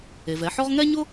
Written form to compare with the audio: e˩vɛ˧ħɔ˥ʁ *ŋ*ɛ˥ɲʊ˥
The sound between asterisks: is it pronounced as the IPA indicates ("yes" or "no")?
yes